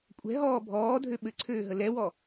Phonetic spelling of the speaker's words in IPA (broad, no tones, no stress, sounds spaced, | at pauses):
kʷʼ ɛ̤ ɦ ɔː bʱ ɔː dʱ ø ɓ ɘ ǀʰ øː ɦ ə l ɛ w ɔ